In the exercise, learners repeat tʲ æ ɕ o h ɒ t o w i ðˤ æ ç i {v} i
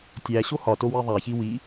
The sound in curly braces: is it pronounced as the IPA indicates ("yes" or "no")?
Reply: no